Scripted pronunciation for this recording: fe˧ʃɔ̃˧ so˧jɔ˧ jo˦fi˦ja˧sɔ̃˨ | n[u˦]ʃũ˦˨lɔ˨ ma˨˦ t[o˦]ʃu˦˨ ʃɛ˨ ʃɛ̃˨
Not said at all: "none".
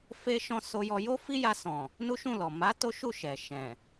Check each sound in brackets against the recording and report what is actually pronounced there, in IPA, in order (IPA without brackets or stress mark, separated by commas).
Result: u˦, o˦